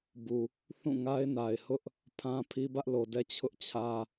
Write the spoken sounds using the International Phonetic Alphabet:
b u˨ | θ ũ˦˨ ŋ a˦ ɪ̯ n a˨ ɪ̯ h ʊ˦ ʔ | pʰ ã˦ pʰ i˦ b ä˦ ʔ l o˨ d ɛ˦ t͡ɕʰ ʊ˦ ʔ t͡ɕʰ ä˦

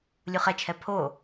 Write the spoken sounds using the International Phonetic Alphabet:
lʲ u χ ɛ t͡ʃʰ ɛ pʰ o

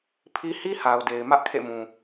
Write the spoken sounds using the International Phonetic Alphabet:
pʰ i˦ h i˦ h a˨ ʊ̯ d e˨ ɪ̯ m ä˦ ʔ kʰ ḛ˦˨ m ũ˨

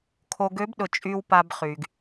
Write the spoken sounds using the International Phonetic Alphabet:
kʰ o˨ ɡ ø˨˦ b ɗ ʊ˨ t͡ʃʼ y˨ w p a˨ b χ y˨ ɡ

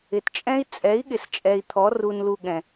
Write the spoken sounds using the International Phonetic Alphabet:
ɪ˨ t t͡ʃʼ ɛ̃˦ i̯ t͡sʼ ɛ˨˦ i̯ ɠ ɪ˨ s t͡ʃʼ ɛ˨ i̯ t̪ʰ ɔ˨˦ r u˧ n l u˧ ɠ ɛ̃˨

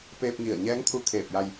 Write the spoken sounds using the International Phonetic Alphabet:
p eː˧ p̚ ŋ i˧˩ ə̯ ɲ ɛː˧˥ ŋ t̪ʰ u˧˥ kʰ eː˧˩ p̚ j a˧ j

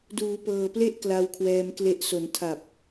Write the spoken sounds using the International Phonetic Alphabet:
d uː˩˦ p ɤː˨˩ p l e˥˩ ʔ k l a˧ w kʰ w ɛː˧ m k l e˦˥ ʔ s o˩˦ n tʰ a˨˩ p̚

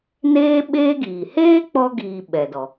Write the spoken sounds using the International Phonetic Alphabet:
n eː˦ ɓ eː˦ ɡ iː˨ h eː˦ k͡p ɔ˧ ɡ iː˨ ɓ ɛ˨ d ɔ˨

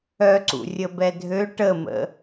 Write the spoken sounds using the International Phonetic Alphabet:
œ ǀ ṵ rʲ ə b ɛ dʱ ø ʈ ə m ə̰

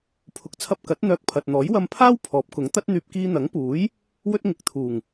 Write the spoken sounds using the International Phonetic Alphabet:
pʰ ʊ˨˥ k̚ t͡sʰ ɐ˧ p̚ k ɐ˨˥ t̚ n̪ œː˧ k̚ pʰ ɐ˨ t̚ n̪ ɔː˨˥ j w ɐ˧ m pʰ aː˥ w pʰ ɔː˨˥ p̚ k ʊ˨˥ ŋ t̪ ɐ˥ t̚ n̪ yː˧ p̚ k iː˧ n̪ ɐ˨˥ ŋ p uː˨˥ j | w ɵ˥ t̚ ŋ ɪ˨˥ k̚ t̪ʰ uː˨˩ ŋ

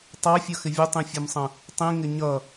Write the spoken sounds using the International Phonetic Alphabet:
tˤ ɑ fʲ ʌ x ɪ vʲ ə tˤ ĩ fʲ ʌ m sˤ ə̃ | tˤ ĩ ŋ ɪ ɲ ʌ

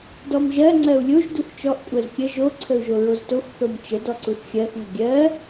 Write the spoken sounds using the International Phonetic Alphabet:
d ɔ m ʒ ɜ ŋ͡ǀ ɜ u̯ lʲ o ʒ d u x t͡ʃ ɔ ʔ kʷʼ ɜ z kʲ ə ʒ o ǀʰ ə u̯ ʒ o ɹ o z t o x θ o m t͡ʃ ə d ɔ ǀ u θ xʲ ɜ x ŋʷ ə ɡʲ ɜ

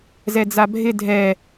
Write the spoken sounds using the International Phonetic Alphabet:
z ɛ d͡z a bʱ ɪ dʱ ɛ

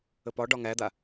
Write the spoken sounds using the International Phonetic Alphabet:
ə p ɒ ɖ ɒ ŋ æ d̪ a

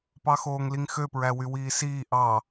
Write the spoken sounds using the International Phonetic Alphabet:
p ɑ x oː ŋ l i ŋ x ø p ɹ æ w y w iː s iː ʔ ɑ

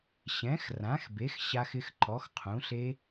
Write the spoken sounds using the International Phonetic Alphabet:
ɕ ɛ̃˩˥ x r ã˩˥ x b e˩˥ x ɕ a˦˥ x ɪ˦˥ x ǃ ɔ˩˥ x qʰ ũ˩˥ ɬ e˦˥

